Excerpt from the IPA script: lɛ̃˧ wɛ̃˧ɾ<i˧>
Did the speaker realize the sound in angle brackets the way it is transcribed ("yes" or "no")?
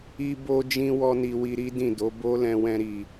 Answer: no